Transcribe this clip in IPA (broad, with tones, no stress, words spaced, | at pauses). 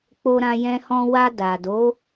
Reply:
k͡po˧ɾã˧jɛ̃˧hɔ̃˧ wa˧da˨ do˨˦